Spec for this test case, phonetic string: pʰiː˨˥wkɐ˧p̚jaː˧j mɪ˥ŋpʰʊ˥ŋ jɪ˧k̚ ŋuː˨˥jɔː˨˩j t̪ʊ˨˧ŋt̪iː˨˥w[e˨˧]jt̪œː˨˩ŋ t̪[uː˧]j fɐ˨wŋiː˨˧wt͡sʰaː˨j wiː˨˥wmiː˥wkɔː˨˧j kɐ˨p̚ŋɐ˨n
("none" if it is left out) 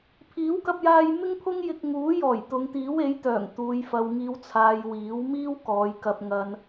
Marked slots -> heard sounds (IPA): e˨˥, uː˨

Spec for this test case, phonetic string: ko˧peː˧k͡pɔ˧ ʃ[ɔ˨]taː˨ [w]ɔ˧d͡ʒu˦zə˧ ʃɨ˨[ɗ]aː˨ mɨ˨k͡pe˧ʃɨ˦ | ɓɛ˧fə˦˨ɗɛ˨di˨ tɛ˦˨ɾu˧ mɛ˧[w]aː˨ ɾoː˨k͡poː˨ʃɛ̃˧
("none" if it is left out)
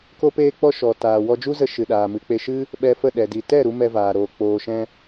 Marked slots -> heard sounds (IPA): ɔ˨, w, ɗ, v

